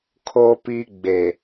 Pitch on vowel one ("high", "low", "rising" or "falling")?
low